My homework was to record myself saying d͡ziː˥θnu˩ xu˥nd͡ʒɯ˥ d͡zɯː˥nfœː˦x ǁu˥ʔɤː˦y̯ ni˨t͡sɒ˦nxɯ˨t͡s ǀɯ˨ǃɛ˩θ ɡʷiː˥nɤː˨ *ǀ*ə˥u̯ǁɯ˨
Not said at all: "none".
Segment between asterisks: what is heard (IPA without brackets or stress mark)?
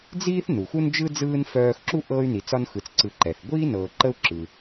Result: ǃ